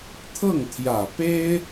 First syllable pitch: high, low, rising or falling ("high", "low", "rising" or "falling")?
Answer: falling